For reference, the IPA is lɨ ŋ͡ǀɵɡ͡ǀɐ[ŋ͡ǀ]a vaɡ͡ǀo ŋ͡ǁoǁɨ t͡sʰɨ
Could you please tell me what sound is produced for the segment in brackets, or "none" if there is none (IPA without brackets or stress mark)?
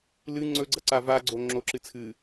ǀ